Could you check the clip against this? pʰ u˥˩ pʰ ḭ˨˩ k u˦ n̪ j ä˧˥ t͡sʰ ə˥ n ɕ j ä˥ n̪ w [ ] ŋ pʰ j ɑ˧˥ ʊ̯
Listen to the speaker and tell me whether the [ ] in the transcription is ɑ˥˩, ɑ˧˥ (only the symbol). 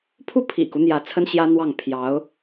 ɑ˥˩